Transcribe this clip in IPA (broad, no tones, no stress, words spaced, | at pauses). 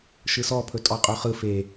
ʃɯsɔpʰɵ tʼɔqʼɵχɯ fe